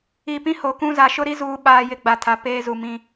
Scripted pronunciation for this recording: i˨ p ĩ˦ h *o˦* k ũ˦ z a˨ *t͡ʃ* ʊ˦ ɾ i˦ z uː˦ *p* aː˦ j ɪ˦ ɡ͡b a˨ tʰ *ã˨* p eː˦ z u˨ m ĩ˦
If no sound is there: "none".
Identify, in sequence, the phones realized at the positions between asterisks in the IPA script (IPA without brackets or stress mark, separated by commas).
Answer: o˨, ʃ, ɓ, a˨